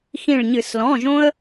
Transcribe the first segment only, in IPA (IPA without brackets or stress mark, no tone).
x